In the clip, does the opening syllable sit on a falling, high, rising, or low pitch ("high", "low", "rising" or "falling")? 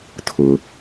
low